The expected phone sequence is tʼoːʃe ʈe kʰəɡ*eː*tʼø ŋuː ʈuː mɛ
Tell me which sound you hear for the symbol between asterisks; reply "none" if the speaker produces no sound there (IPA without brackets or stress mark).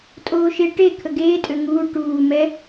eː